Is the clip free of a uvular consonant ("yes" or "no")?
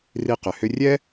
no